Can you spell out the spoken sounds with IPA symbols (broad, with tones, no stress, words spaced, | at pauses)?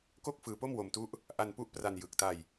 ko˥˩k̚fɯː˧po˥˩m wo˧mtu˦˥ʔ | ʔa˧npu˦˥ʔpra˧n jɯ˨˩k̚ta˧j